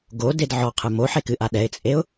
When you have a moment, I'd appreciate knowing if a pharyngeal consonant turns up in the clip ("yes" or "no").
yes